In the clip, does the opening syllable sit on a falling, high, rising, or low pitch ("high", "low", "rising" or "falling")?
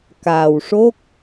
low